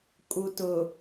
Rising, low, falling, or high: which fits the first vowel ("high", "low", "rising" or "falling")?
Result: low